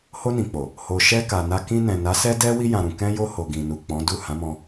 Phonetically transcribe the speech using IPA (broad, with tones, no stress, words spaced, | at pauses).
ho˧nĩ˨k͡po˨ | ho˨ʃɛ˧ ka˨na˧ kĩ˧nɛ̃˨ na˨˦sɛ˦dɛ˦ wi˧jã˨ɾũ˨ kɛ̃˧jo˧ ho˨ɡĩ˨nu˨ k͡pɔ̃˨˦ du˦˨ hã˨˦mɔ̃˧